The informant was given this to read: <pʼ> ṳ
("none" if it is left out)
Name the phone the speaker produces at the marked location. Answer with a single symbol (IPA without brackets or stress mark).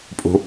pʼ